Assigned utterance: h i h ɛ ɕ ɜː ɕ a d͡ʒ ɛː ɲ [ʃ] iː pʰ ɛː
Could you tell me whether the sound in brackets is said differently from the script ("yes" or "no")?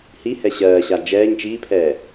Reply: yes